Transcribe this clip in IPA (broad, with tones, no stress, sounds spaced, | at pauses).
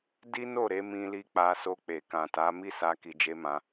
d i˦ n o˦˨ ɾ e˨˦ m ĩ˧ l i˧ k͡p a˧ s o˧ k͡p e˨ k ã˨ t a˨˦ m i˦ s a˧ k i˧ d͡ʒ e˦ m ã˧